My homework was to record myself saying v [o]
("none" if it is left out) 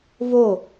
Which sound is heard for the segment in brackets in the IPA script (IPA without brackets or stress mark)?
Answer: o